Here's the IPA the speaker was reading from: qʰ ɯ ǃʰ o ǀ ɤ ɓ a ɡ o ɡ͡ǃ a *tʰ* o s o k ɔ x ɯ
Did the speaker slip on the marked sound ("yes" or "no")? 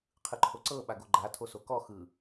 no